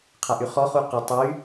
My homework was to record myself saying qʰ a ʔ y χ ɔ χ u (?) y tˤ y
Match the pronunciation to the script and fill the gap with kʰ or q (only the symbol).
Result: q